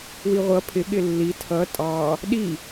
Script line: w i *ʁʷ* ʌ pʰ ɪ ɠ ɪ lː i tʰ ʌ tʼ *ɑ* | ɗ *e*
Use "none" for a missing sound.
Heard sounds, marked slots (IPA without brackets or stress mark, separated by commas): ʁʷ, ɑ, i